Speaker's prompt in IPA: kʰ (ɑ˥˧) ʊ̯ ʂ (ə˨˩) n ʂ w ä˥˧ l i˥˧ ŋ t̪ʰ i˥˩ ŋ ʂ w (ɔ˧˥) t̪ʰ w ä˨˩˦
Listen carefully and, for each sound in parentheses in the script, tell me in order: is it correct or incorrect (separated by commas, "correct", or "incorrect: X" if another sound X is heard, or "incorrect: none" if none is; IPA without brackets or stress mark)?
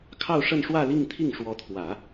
correct, incorrect: ə˥˧, correct